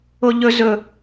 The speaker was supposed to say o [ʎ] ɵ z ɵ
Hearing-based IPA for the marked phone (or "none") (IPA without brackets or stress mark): ʎ